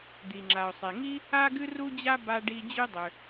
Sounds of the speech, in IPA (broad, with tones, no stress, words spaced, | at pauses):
d̪i˩ ŋ͡ǁa˩ʊ̯sˤe˩ŋi˥ | a˥ɡɨ˥ ru˥d͡ʑa˥ ba˥ɖi˥ d͡ʑy˥dˤʏ˩